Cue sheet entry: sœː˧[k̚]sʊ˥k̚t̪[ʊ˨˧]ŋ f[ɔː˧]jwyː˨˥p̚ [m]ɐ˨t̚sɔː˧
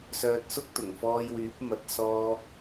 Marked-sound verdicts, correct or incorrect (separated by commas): incorrect, incorrect, correct, correct